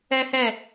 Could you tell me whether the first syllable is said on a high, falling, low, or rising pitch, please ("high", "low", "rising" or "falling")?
high